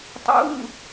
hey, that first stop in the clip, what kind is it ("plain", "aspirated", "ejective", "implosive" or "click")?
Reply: plain